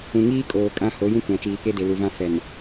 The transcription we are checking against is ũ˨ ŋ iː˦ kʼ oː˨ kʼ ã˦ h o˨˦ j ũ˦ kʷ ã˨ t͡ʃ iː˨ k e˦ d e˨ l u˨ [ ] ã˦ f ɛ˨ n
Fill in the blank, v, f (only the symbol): v